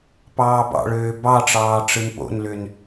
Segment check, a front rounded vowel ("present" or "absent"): present